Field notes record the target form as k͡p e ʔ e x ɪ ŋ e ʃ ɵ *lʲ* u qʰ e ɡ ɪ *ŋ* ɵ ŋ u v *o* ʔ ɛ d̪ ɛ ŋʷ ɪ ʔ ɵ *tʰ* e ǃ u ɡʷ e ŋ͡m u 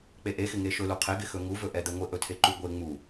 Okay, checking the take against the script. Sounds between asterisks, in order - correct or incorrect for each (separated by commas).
incorrect, incorrect, incorrect, correct